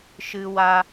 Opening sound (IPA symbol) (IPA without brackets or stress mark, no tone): ʃ